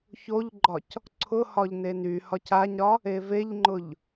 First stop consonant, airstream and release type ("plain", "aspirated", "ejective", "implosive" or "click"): click